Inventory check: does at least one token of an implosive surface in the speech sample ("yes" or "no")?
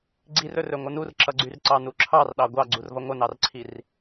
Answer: yes